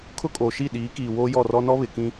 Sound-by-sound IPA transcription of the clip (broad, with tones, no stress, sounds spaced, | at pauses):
kʰ ʊ˦ kʼ oː˨ ʃ i˦˨ ɗ iː˨˦ k iː˨ w oː˦ j ɔ˦˨ r ɔ˦ n ɔ˦ β ɪ˨ k ĩ˦